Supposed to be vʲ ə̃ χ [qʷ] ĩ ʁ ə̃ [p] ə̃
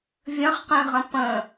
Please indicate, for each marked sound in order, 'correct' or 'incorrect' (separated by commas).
incorrect, correct